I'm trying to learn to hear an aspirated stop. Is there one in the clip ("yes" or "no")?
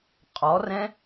no